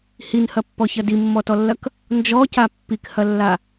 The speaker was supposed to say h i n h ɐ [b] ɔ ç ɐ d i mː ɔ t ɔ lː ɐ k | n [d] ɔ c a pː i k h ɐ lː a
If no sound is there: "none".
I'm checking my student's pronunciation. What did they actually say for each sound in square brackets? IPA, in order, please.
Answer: pː, d͡ʒ

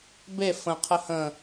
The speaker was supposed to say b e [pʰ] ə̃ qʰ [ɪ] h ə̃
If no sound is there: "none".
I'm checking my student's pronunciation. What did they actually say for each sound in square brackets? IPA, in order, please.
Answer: f, ə

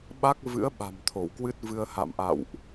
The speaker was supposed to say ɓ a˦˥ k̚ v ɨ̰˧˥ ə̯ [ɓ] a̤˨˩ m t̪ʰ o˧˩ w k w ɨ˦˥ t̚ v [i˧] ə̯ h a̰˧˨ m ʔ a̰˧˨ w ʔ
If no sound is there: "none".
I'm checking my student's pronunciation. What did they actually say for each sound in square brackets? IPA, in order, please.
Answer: ɓ, ɨ˧

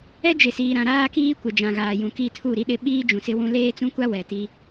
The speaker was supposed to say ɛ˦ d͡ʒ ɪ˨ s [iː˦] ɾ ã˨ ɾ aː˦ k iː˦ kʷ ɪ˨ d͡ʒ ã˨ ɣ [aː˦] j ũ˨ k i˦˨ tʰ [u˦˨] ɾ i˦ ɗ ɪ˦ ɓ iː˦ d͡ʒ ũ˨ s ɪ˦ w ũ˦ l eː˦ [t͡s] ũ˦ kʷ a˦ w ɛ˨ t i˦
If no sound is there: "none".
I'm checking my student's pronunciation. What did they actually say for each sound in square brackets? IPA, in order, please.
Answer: iː˨, aː˨, u˦˨, t͡s

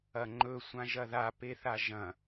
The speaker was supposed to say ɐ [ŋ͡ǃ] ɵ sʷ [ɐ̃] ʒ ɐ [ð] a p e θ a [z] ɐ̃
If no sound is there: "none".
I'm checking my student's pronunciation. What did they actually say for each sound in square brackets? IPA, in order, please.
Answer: ŋ͡ǃ, ã, ð, ʒ

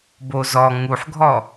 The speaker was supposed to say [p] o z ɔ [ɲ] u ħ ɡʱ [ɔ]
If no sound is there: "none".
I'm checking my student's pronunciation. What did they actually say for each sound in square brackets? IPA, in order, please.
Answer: b, ŋ, ɔ

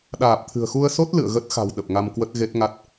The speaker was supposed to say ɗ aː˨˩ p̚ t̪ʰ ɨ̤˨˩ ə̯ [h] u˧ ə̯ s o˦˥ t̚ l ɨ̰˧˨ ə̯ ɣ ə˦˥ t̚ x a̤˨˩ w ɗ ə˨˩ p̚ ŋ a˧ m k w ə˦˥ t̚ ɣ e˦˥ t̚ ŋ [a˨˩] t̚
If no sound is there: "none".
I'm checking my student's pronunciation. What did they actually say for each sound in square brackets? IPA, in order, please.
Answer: x, a˦˥

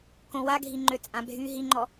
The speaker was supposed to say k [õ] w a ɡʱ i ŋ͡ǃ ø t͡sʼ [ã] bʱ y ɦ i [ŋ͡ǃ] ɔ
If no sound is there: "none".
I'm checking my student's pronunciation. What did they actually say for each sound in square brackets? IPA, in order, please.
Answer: õ, ã, ŋ͡ǃ

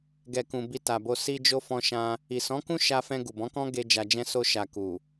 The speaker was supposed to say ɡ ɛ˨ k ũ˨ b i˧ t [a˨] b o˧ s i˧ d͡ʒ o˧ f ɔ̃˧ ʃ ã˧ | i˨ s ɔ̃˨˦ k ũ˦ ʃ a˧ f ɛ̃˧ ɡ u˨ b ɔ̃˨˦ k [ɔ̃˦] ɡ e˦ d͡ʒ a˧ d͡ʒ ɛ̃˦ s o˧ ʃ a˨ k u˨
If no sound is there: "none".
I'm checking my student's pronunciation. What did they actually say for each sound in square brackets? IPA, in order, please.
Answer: a˨, ɔ̃˦

